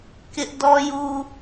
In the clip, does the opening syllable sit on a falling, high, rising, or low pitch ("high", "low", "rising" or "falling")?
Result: high